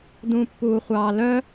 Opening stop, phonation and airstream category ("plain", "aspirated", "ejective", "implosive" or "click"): plain